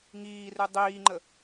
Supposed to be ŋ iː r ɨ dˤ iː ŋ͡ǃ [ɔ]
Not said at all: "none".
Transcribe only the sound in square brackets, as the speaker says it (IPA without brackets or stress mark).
ə